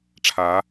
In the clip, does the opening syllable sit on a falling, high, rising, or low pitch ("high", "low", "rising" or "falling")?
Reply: rising